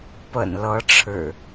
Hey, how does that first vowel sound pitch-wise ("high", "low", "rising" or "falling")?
low